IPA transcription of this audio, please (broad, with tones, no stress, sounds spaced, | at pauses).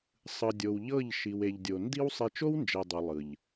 sˤ ɯ˨ dʲ o˨ w ʎ ɤ˦˨ ʎ ʃ i˨ w e˨ ʎ dʲ o˨ n d i˦ w sˤ e˦ t͡ʃ o˦ w n d͡ʒ ɛ˨ dˤ o˨ lˠ ɯ˨ ʎ